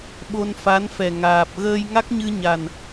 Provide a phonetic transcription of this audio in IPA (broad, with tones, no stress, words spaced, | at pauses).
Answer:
ɓo˧nfa˧˥nfɛ˨˩ŋaː˨˩p̚ ɣəː˧jŋa˦˥k̚ɲɨ˧ ɲa˨˩n